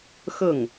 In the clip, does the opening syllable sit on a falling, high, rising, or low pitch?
falling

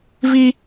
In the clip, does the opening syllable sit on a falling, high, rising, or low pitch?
high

